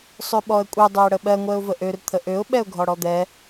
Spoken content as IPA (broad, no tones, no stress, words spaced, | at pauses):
sˤøɓɔə̯kʷʼɛ dˤøə̯ɽəɓɜ ŋʷɛʊ̯vəʔør t̪ʰəʔøʊ̯ ɓɛʊ̯ɡʱɔɽɔd̪ɛ